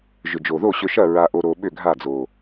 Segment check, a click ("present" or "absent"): absent